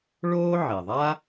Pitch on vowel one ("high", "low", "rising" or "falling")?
high